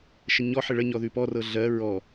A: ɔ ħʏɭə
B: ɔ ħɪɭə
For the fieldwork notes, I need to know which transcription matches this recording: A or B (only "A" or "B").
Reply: B